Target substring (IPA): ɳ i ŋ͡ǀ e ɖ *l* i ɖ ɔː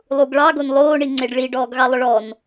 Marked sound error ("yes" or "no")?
yes